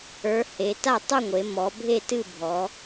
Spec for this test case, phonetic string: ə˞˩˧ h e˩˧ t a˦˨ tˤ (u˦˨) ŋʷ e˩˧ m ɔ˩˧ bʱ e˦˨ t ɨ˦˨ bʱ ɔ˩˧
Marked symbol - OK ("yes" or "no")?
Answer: yes